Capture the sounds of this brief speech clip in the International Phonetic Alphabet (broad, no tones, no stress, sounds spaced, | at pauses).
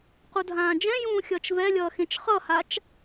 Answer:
q u dʱ ãː d͡ʒ ɛ̃ j ũː xʲ ʌː t͡ʃ v ɛ lʲ ʌː x ẽ t͡ʃ χ ʌ h a t͡ʃ